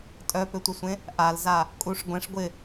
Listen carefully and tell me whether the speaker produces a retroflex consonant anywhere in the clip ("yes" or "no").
yes